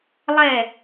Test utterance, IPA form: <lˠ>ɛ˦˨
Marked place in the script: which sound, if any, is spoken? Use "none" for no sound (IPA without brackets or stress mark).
lˠ